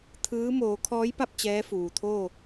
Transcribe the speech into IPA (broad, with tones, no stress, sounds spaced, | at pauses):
t̪ʰ ɯː˧˥ m oː˩˧ kʰ ɔː˧˥ j p a˥˨ p̚ t͡ɕ ɛː˧˥ f uː˩ t̪ʰ oː˥˨